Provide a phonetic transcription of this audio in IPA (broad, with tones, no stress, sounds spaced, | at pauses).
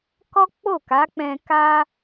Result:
k ɔ˦ k͡p o˦˨ k a˨˦ k͡p ɛ̃˧ k a˦